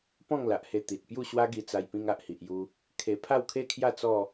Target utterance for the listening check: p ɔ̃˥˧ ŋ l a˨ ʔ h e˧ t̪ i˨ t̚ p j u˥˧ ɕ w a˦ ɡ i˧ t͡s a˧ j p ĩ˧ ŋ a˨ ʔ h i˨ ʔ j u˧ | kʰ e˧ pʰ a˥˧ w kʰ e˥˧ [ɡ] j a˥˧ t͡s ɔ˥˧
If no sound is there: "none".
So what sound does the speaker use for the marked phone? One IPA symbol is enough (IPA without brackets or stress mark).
kʰ